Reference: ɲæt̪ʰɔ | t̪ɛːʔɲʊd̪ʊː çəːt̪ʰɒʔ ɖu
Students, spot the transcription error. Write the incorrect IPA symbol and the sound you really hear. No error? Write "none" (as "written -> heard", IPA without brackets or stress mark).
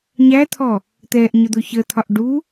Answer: none